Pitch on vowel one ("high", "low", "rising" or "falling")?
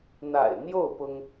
low